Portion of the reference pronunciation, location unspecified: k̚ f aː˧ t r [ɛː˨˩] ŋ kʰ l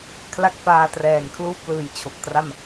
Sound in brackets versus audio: correct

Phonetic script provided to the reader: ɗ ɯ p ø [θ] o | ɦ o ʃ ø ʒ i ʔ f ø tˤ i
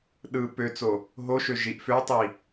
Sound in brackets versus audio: incorrect: t͡s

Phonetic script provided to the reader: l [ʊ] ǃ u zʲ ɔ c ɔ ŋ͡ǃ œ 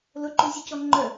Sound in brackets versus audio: correct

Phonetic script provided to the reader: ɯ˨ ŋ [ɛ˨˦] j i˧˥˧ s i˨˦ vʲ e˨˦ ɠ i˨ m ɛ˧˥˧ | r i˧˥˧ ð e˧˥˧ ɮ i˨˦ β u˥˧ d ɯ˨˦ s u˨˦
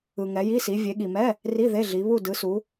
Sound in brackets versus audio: correct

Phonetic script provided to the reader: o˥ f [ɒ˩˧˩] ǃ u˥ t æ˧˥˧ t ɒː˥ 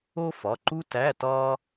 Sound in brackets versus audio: correct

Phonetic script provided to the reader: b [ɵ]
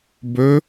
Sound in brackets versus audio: correct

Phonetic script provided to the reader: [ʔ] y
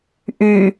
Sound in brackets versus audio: correct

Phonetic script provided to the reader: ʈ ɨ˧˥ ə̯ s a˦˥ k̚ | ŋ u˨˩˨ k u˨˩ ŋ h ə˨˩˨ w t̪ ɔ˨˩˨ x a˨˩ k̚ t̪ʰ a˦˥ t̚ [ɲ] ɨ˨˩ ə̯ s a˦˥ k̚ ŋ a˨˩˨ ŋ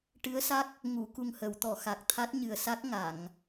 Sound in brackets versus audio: correct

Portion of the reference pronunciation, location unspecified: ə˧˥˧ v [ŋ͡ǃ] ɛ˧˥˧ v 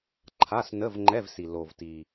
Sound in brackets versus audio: correct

